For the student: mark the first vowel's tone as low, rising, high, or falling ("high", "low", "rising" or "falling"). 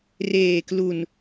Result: low